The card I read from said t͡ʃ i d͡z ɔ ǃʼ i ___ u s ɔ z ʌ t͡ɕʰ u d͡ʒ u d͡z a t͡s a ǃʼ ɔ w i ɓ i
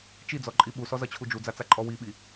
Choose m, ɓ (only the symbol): ɓ